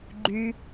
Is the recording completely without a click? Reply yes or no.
no